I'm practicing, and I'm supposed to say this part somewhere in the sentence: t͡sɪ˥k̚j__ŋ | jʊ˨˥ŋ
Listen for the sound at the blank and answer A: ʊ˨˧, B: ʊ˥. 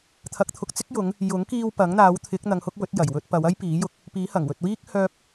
A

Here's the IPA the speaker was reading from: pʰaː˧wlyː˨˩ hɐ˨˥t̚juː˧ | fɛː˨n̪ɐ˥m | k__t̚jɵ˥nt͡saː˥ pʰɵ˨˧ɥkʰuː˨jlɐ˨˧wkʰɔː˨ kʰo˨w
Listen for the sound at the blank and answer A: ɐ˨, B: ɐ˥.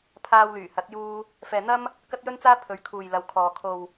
B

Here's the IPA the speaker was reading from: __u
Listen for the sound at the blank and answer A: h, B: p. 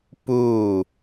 B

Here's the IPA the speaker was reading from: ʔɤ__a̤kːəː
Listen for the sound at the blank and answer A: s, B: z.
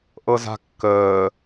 B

